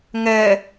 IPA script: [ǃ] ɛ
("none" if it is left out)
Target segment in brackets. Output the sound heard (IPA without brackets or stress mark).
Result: ŋ